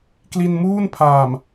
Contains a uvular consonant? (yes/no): no